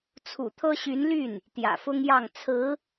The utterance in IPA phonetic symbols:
t͡sʰṵ˨˩t̪ʰɤ˥ɕy˧˥nly˥˩n | t̪jä̰˨˩fʊ˥ŋjɑ˥˩ŋ t͡sʰɹ̩˧˥

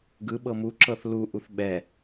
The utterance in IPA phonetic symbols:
ɡɯɓɤ muǁɤθ luʔuθ ɓɛ

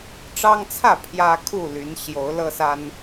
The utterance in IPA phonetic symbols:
ʈ͡ʂɑ˦ŋt͡sʰä˥˨ pʰjä˦kʰu˥˨ly˨˦n ɕjo˨˦ʊ̯lɤ˦sa˦n

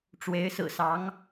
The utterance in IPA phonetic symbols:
ʈ͡ʂwe˧˥ɪ̯sɹ̩˨˩sɑ˧˥ŋ

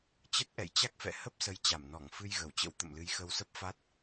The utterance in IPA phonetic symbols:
t͡ɕə˦˥t̚ʔɛ̰˧˨jt͡ɕa˦˥k̚fɛ̰˧˨ hə˦˥p̚ sə˧j t͡ɕa˧˩mnɔ˧˩ŋ fɨ˧jɣə˧˩wt͡ɕə̰˧˥w t̪ə̰˧˨mlɨ˨˦jxə˧wsə˦˥p̚ fa˦˥t̚

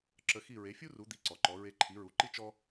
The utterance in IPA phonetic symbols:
ǁə˧xi˥˩ ɹe˩˥fʲu˥ru˩˥ d̪i˩˥ǀɔ˩ǃɔ˩˥ ɹe˧ǃʰi˩˥ɹu˩˥ǃi˥ t͡ʃɔ˥

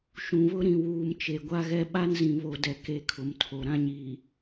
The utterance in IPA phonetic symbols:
ʃũ˨βʊ˦ ɾĩ˨wuː˨m t͡ʃe˨ɡʷa˦ɣɛ˦ ɓa˦nzĩ˨βo˨dɛ˨ ke˦˨kʰʊ˨mtʰo˨ ɾã˦ɲiː˨

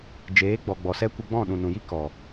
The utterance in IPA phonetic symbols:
d͡ʒeː˨˦ɡ͡bɔ˨ ɡ͡bɔ˨sɛ˦ kʷə˧ɡ͡bɔ̃˦˨ɗũ˨ nũ˨ji˦ kɔ˨

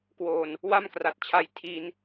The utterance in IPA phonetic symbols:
kwoː˧n | wa˥˩mkra˨˩t̚t͡ɕʰa˧j tʰi˧n

